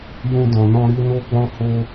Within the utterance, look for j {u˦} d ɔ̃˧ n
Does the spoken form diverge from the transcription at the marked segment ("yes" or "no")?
yes